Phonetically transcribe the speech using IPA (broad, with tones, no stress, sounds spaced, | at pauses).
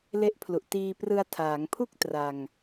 l e˦˥ ʔ pʰ l u˨˩ ʔ t iː˧ p r ɯ˧ a̯ tʰ aː˩˦ ŋ pʰ u˥˩ k̚ t r a˧ ŋ